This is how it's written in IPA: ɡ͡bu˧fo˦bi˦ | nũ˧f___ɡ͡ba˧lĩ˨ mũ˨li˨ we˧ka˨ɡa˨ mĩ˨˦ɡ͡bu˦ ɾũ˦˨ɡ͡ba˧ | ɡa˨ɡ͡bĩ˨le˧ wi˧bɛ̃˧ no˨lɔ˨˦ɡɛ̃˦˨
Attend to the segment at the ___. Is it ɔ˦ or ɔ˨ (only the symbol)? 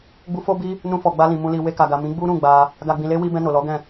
ɔ˨